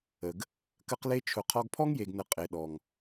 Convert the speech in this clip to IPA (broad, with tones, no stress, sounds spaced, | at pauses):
ə˨ ɡ | k ə˧ q l e˧ t͡ʃʰ ʊ˨ qʰ ɔ˧ ɡ pʰ ɔ˦ ŋ j e˨ ɡ n ə˨ qʼ e˨ ɗ ɔ˨ ŋ